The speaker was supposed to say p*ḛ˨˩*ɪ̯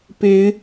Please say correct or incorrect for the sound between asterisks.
incorrect